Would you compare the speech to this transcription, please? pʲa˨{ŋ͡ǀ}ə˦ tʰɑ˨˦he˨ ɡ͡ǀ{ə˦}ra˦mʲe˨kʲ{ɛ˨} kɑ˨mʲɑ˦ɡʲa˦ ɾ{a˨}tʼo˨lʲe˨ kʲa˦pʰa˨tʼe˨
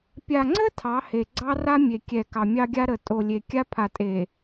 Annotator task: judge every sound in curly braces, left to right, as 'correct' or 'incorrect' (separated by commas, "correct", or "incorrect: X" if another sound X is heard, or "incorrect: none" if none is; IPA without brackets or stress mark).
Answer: correct, incorrect: ɑ˦, correct, incorrect: ə˨